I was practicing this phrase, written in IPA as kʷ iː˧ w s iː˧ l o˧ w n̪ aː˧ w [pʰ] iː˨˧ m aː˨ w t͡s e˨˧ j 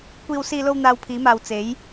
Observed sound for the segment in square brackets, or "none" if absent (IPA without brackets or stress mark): pʰ